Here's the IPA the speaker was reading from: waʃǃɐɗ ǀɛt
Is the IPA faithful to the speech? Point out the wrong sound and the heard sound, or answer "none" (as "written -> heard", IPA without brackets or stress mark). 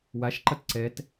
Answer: ɗ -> t